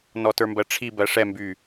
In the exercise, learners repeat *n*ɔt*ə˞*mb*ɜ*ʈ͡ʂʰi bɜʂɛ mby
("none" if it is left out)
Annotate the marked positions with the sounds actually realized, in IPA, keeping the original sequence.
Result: n, ə˞, ɜ

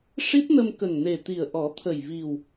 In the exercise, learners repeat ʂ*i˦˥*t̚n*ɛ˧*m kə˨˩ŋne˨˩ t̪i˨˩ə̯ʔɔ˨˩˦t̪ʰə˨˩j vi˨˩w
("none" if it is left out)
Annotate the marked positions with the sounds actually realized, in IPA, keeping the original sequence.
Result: i˦˥, ə˧

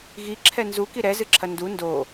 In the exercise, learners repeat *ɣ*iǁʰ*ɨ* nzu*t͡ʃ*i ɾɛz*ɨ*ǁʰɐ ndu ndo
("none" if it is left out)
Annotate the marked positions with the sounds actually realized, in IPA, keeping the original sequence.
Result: ɣ, ɛ, k, ɨ

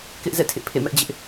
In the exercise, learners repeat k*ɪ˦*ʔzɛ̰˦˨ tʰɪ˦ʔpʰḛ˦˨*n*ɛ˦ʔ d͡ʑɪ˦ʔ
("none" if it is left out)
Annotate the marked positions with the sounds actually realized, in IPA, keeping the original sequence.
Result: ɪ˦, m

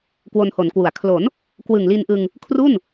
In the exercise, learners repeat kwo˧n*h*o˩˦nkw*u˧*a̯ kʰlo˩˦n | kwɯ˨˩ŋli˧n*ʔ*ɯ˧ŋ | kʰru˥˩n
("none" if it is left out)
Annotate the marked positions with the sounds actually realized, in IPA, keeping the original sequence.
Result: h, u˩˦, ʔ

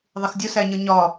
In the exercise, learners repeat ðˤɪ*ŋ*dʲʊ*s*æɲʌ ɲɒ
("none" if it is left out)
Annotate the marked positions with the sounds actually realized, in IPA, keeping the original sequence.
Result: x, s

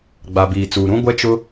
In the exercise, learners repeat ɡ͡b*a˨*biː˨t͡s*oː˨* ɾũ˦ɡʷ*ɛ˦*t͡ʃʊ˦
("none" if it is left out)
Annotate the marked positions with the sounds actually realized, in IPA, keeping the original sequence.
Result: a˨, uː˨, ɛ˦

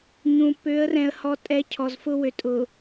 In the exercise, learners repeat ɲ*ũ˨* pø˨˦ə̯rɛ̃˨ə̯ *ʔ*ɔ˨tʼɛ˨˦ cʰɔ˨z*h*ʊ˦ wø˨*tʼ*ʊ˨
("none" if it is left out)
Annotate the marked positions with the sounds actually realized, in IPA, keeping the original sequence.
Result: ũ˨, h, f, tʼ

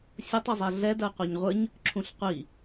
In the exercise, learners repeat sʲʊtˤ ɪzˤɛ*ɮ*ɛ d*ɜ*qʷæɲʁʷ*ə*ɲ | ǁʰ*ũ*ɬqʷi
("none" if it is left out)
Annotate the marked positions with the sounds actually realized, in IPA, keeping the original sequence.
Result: ɮ, ɜ, ə, ũ

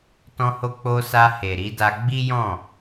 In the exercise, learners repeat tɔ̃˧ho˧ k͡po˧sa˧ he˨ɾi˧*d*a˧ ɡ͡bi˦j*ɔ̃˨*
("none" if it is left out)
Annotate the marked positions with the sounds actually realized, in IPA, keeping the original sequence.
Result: d, ɔ̃˦˨

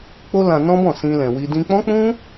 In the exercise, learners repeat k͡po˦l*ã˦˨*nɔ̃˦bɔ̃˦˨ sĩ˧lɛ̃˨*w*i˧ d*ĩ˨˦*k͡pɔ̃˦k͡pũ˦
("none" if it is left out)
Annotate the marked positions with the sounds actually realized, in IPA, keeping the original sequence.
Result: ã˧, w, ĩ˧

